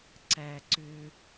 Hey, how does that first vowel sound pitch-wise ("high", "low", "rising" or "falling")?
low